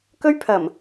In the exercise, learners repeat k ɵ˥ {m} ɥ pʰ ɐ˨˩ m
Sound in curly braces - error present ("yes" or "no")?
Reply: yes